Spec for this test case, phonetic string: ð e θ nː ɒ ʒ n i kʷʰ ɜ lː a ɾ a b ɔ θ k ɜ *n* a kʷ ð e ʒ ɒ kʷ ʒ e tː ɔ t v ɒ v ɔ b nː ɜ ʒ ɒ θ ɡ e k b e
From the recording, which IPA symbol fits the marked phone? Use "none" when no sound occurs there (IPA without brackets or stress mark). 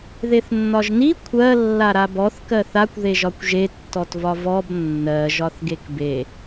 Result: θ